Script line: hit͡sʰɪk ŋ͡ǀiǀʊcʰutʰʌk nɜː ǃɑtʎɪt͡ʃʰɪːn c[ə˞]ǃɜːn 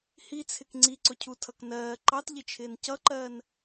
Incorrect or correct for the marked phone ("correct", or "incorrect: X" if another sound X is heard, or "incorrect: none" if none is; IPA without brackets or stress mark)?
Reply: incorrect: ʌ